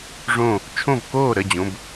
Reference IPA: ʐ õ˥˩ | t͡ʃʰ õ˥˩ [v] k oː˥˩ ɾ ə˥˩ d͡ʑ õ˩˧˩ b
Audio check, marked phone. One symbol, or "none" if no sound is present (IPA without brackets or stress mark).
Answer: v